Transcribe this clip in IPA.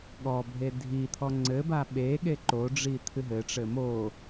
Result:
ɠ ɔ bʱ e dʱ i t̪ʰ ɔ ŋ͡ǀ ɘ b a ɓ e ɠ e ǃ o ɖ͡ʐ i t̪ʰ ɨ ɦ ɘ ʈ͡ʂ ɘ m o

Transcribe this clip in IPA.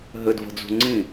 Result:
ɦ ɘ d v ə̤ d͡z ṳ ŋ͡ǀ ĩ

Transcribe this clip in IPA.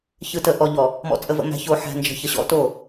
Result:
ç ɯ˨ t ə˨ ʔ ɔ˨ ʎ ɔ˨ | m ɔ̰˨ t͡sʼ ə˨ v ə̰˨ m æ̤˨ ç o˨ ħ æ̤˨ n d͡ʒ ə̤˨ ç ə˨ ɕ ɔ̰˦ t o˦˨

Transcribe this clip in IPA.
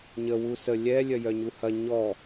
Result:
ɲ ə w u s ə lʲ ɛ lʲ œ j œ ɲ u h ɐ ɲ ɔ

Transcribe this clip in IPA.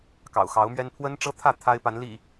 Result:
k ɑ̰˨˩ ʊ̯ x ɑ˨˦ ʊ̯ m ɥ ɛ˦ n pʰ w ə˦ n ʈ͡ʂ ɤ˦ t̪ʰ ä˥˨ t̪ʰ a˦ ɪ̯ p a˨˦ n l ḭ˨˩

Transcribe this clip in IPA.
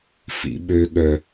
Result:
f ḭ ɓ ø ɠ œ

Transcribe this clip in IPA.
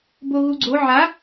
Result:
b o ɣ u ɡ͡ǀ o ʕ a

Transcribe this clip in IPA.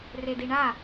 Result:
r e d i ɳ a

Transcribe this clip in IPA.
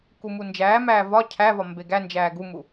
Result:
k u m u n d͡ʒ æː m æː v ɒ cʰ æ v ɒ m b e ɡ æ n d͡ʒ æː ɡ u m u

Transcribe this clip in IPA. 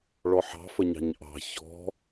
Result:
ɭ ɔ ħ ɑ̤ f ə ɲ ɑ̤ ɲ ʔ ɑ̤ ç ɔ̤

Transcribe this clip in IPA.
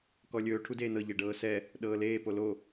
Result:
k ɔ lʲ ɵː ʈʰ u d eː n ɤ ʎ e ɖ ɤː s ɛ | ɗ ɤː l eː p o l o

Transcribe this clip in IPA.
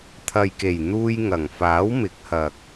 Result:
t̪ʰ ɐ˨ j k e˨˩ j n̪ uː˧ j ŋ ɐ˨˩ ŋ f aː˨˥ w m ɪ˨˥ k̚ h ɐ˨ k̚

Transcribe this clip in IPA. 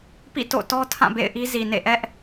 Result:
p ḭ˦˨ t o̰˦˨ t ɔ˦ tʰ ã˦˨ b ḛ˦˨ ɪ̯ ʔ i˦ z i˨ n ḛ˦˨ ʔ ɛ˦ ʔ

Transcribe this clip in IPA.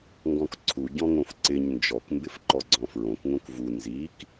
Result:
ŋ ɡ ɔ̃ k ǀʰ u ɟ ɔ̃ ŋ õ f ǀ ɪ ɲ n d͡ʒ ɔ k m b ɪ f ǃ ɔ ɡ͡ǀ ɔ̃ f ɹ õ k ŋ õ k v u n z i k

